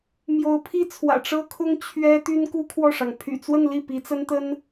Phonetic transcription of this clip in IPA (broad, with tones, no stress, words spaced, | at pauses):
mjo˧˥ʊ̯pʰi˥ t͡sʰwä̰˨˩ʈ͡ʂɤ˥kʰʊ˥ŋ t͡ɕʰɥɛ˥ t̪y˥nku˥kʰwɔ˥˩ʂɑ˩ŋ pʰy̰˨˩t͡swə˥˧nli˥˩ pi˧˥t͡sə˥nt̪ə˥n